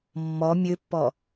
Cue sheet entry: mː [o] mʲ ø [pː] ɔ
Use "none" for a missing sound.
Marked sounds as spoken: ɔ, pː

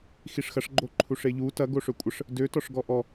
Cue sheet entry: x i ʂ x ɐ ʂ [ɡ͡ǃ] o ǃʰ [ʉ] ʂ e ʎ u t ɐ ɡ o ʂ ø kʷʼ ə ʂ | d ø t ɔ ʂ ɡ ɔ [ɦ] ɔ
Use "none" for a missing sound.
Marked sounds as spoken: ɡ͡ǃ, u, ʔ

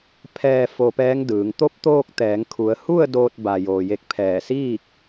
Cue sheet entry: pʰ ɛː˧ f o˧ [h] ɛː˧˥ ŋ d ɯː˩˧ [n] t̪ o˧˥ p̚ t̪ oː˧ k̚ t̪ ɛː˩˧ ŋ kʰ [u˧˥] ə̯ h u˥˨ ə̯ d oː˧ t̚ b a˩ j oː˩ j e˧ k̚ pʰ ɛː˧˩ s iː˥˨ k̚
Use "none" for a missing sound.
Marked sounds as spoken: p, ŋ, u˩˧

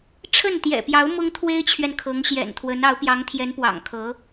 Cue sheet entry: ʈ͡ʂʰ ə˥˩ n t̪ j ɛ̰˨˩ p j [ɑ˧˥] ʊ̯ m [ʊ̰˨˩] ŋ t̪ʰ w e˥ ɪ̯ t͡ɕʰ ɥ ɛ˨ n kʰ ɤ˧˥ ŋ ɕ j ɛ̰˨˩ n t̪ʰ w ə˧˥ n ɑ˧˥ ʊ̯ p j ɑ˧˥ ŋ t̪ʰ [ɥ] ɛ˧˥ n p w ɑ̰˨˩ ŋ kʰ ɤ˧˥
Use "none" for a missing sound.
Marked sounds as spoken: ɑ˧˥, ʊ˥, j

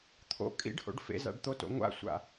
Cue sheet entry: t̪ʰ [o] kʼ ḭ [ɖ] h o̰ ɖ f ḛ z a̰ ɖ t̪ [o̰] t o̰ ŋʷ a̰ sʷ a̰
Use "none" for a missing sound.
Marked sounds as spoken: o̰, ɖ, o

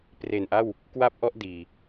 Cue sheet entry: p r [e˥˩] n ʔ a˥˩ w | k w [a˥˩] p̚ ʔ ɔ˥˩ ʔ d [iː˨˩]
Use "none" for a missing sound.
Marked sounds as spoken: e˨˩, a˥˩, iː˨˩

